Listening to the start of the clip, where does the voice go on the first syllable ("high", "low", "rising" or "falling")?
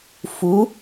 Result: rising